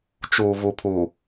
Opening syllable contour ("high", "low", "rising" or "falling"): low